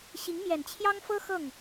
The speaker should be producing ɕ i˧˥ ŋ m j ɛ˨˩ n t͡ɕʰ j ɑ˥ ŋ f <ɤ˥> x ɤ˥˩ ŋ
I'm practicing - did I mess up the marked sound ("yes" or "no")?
no